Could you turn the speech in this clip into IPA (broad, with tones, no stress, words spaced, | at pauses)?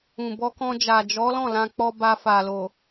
ũ˨bɔ˧kɔ̃˧d͡ʒa˨ d͡ʒɔ˨˦lɔ̃˦˨ lã˧k͡pɔ˧ba˧ fa˨lo˨